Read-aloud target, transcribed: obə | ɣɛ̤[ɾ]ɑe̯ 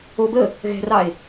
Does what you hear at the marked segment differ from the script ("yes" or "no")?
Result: yes